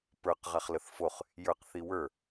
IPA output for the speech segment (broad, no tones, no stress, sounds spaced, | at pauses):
p ə˞ q ʁ a χ l ə θ f o χ | j ə˞ q θ i w ə˞